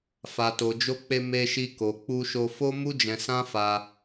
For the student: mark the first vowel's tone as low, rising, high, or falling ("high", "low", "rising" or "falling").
low